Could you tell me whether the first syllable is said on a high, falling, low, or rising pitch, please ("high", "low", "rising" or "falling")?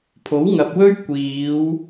rising